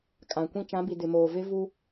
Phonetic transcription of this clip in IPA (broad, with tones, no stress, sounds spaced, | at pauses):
kʼ ã˨ kʷ ĩ˦ t͡ʃ ã˨˦ b i˨ d ɪ˨ m oː˨ v ɪ˦ v u˦